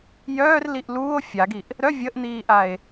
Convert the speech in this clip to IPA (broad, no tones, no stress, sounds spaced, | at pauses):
j œː r l i ʔ l uː o̯ fʲ a ɡ i ʔ | ɾ œ vʲ ə ʔ n̪ iː ʔ a e̯